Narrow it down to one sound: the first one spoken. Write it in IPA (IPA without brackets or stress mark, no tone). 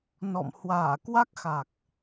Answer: n